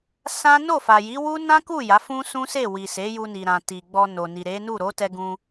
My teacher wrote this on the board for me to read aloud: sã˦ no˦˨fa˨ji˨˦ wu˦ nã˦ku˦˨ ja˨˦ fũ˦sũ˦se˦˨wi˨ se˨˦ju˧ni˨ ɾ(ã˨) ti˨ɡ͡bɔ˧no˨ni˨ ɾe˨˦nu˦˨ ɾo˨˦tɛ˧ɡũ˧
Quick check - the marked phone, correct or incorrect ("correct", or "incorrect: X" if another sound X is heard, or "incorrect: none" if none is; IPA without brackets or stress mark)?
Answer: correct